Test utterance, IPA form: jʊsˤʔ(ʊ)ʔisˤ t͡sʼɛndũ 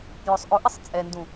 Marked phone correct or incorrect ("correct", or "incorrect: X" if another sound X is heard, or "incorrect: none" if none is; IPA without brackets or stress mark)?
correct